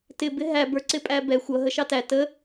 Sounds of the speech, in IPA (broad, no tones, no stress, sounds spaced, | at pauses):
t ɪ b ɪ ɦ æ b ə˞ ǀ ɪ pʼ æ b ɛ xʷ ʌ ɦ ə ʃ ɑ t æ t ə